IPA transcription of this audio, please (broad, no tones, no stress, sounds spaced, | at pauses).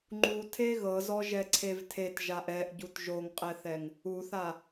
ŋ͡ǃ u tʰ e ɣ ɤ z ɔ ʒ ɛ ǀʰ e v tʰ e t ʒ a ʔ ɛ ʔ ɟ u t ʒ o ŋ qʼ ɛ θ ɛ ŋ | u θ a